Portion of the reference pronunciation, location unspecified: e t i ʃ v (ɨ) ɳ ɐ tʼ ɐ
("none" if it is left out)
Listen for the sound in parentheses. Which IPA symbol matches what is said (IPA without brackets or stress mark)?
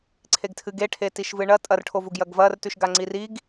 ɨ